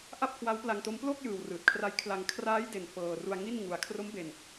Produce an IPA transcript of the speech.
ʔa˥˩p̚kʰwa˦˥wpla˧ŋto˦˥m plo˥˩k̚jɯː˨˩w rɯː˨˩t̚kʰra˦˥jkʰla˧ŋ kʰraː˦˥jde˨˩n fɤː˧ ru˧a̯ ŋi˥˩n ŋu˧a̯ kʰro˦˥mbe˧n

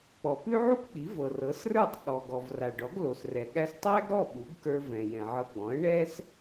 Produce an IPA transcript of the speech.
k͡pɔ˩pʉ˥ʕu˥kk͡pi˩˥ vɤ˩rɤ˩˥srə˞˥˩tˤ ɠɔ˩ɡɔ˩v ra˩ɖɔ˩˥ɡlo˩s rɛ˩ ɠæ˧stˤæ˥ɡɾɔ˥˩ ɓu˩˥ɡkə˞˧vɛ̃˩ jɛ̃˩ʕɤ˧ ɡ͡bɔ̃˩˥ə̯ ɳɛ˥s

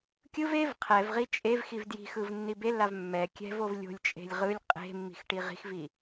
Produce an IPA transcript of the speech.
kʲɯv ev qʰɛvʁi t͡ʃʼevxiv dji̤xɯv nːibelːav mːɛ kʲɛ̤vov lʲo̤lʲt͡ʃʼe̤lʲ ʁɯlʲ qʼe̤mːi̤x ʈiʁi̤xvi

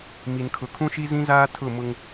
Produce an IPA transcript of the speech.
mi˨nkʰʊ˨ kʰũ˦ʃi˦zĩ˦zaː˦ tʰʊ˦˨ mʊ˦ŋ

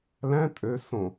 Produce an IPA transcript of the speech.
læ̃ tʼø sõ

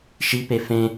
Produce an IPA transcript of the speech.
ʃipe fẽ

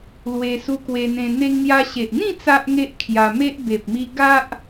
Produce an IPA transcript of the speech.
lwe˧su˧kwe˧n̪ẽ˧ n̪e˧ŋn̪ja˧ɕe˨ʔn̪ĩ˥˧ t͡sa˦ʔŋe˦ʔ kʰja˧me˦ʔ be˨p̚mi˧ ɡa˦ʔ

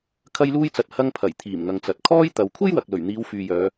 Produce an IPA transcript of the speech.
kʰɐ˧jluː˧jt͡sɐ˨t̚ hɐ˧ŋpʰɐ˨˩jt̪ʰiː˨˩m ŋɐ˨ŋt͡sɐ˨t̚ kʰɔː˥j t̪ɐ˨˧w kʷʰe˥jwɐ˨k̚lɵ˨˩ɥn̪iː˨˧w fyː˨jœː˨˧

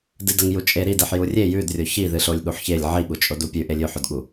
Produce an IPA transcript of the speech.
dɨdɐŋjut͡ʃʼe ɾideħ jurʲe jʉdrʲo çiðɨɬolʲ ɠuħçelʲ ʕiɠut͡ʃʼod upʲʉʔe lʲʉħɵdɠu

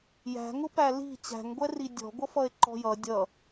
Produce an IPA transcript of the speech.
jæ̤ŋʊ pæli̤ t͡ɕæ̤ŋɡʷɛri dʲɔ̤ ɡʷʌfʌe̯ǃɔ̤jʌ dʲʌ

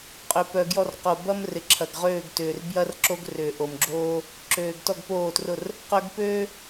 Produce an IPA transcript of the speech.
qʼø˧pœ˧ ɡjɔ˥˨rqo˧ bɐ˥m rɪ˧ǁʰɐ˧ɡʁøː˥˨ɡ tʏː˧r bjɐ˥rǁo˥ɡ rʏː˧ʔo˧mɡ͡ǁoː˥ | ǁøː˧ɡtɔ˥˨ɡpoː˥˨trʊ˥˨r | qœ˥ɡ pøː˥

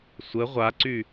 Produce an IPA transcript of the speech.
sʷə ʁʷaǀy

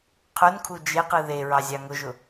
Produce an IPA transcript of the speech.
qʰʊnkʰu d͡ʒeqɯ ðeɹɑzʲɑ ŋʊʒʊ

